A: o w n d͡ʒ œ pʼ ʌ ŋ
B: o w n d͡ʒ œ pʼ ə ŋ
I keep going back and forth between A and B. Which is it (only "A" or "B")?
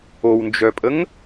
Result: B